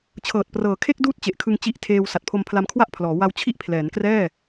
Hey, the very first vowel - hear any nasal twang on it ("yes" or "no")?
no